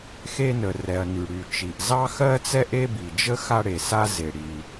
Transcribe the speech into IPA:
x e˥ n ə˩ r ɛ˩ ɐ̯ n y˩ ɽ y˩ t͡ʃ i˩ ʔ z ɑ˥ x ɜ˥ t͡s ɛ˥ ʔ e˥ b i˩ d͡ʒ ə˥ x a˥ ɽ e˩ s a˥ z e˩ ɽ i˩

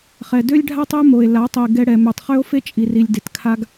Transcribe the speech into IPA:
χ ɛ˨ d ø˦ lʲ ɖʱ a˦ tˤ e˦ m o˨ e̯ l a˨˦ tˤ i˨ ɡ ɛ˧ ɽ ɛ˨ m ø˨ tˤ χ ø˦ o̯ f e˦ t͡ʃʼ i˨ r i˨ lʲ d e˨ t kʰ a˧ ɡ

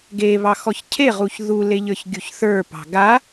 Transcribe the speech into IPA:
ɡ e β ɑ x ɔ ç cʰ e ʁ u ç ð u l e ʎ ə˞ ç ɡʲ u ç θ ə˞ p ɑ̤ ɡ a

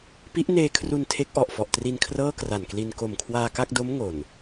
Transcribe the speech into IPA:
p i˦˥ ʔ n eː˧ kʰ r u˧ n tʰ e˦˥ k̚ ʔ ɔ˨˩ ʔ f ɔ˨˩ ʔ t r i˧ n kʰ r ɤː˥˩ k r a˨˩ n k l i˧ n k o˨˩ m kʰ w aː˧ k a˥˩ k̚ d o˦˥ m ŋ o˨˩ n

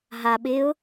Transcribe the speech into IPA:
ɦ a ɓ ɪ ʊ̯

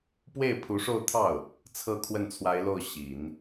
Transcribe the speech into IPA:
p w e˥˩ ɪ̯ pʰ u˧˥ ʂ o˥˧ ʊ̯ t̪ʰ ɑ˥˩ ʊ̯ | t͡sʰ ɤ˥˧ kʰ w ə˥˩ n t͡sʰ w a˧˥ ɪ̯ l o˥˩ ʊ̯ ɕ i˨˩˦ n

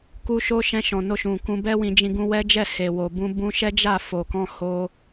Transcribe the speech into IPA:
k u˦ ʃ o˦ ʃ ɛ̃˧ ʃ ɔ̃˨ n o˧ ʃ ũ˨ k ũ˧ b ɛ˦ w ĩ˧ d͡ʒ ĩ˧ ɡ ũ˧ w ɛ˦ d͡ʒ ɛ˦˨ h e˨ w o˨ b ũ˧ b ũ˧ ʃ ɛ˦ d͡ʒ a˦˨ f o˨ k ɔ̃˧ h o˧

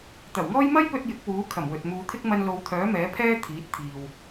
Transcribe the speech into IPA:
t̪ ɐ˨˩ w ŋ ɔː˥ j m ɐ˥ j p ɵ˧ t̚ j ɪ˨˥ k̚ w uː˨˥ kʰ ɐ˨˩ m w ɵ˨ t̚ m uː˨˧ t̪ʰ ɪ˥ k̚ m ɐ˧ n l o˨˧ w t̪ʰ œː˨˥ m ɛː˨˥ pʰ ɛː˥ t̪ʰ iː˨˥ t̚ t̪ʰ iː˨ w

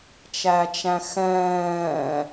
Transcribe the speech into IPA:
t͡ʃ æ t͡ʃ æ̃ x ɛ̃ː

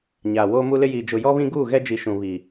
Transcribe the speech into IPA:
ɲ aː˨ w oː˦ m u˦ l ɪ˦ j iː˨ d͡ʒ ʊ˨ j ɔ˦ β ĩ˦ ɡ uː˦˨ ɣ ɛ˦ d͡ʒ i˨ ʃ ũ˨ β i˨

